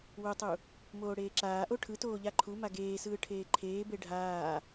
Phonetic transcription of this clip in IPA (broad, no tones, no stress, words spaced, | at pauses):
wotˤu | moːɽeːǁaːʔo ʈʰɯ toːʎaǃʰuma ɡeːsɯː ʈʰeːǃʰeːbe ɖʱaː